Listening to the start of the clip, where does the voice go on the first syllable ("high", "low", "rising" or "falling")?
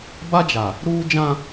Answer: high